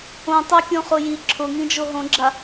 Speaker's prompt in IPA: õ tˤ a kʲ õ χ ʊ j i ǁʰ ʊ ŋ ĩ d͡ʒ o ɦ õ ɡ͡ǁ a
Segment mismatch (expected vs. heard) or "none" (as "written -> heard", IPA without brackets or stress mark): none